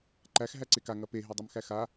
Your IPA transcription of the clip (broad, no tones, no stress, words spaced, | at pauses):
ǃæx ɦæǀeka ŋɐpe ɦedˤʉmxæxa